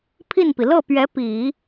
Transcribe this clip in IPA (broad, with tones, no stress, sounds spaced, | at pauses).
pʰ i˥˩ n p i˩ l ɤ˥˩ p ɥ ɛ˧˥ p i˨˩˦